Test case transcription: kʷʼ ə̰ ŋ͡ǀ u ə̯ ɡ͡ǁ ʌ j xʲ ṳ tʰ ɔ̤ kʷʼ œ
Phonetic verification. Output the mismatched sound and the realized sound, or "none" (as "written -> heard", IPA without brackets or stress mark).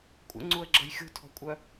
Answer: none